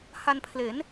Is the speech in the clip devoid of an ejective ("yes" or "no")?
yes